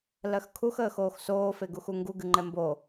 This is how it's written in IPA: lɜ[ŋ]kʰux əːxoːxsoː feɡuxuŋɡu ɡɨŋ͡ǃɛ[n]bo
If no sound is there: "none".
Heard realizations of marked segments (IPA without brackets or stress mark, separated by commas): x, m